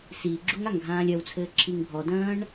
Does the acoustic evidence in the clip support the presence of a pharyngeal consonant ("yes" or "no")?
no